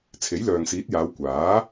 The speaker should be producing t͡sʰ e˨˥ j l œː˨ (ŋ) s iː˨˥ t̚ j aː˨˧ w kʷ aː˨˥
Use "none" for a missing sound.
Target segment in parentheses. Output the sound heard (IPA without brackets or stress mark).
ŋ